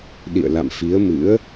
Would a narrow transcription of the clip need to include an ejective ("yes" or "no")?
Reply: no